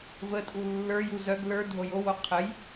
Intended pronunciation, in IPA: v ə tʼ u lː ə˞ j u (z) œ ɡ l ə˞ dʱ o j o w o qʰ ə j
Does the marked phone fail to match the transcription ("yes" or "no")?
no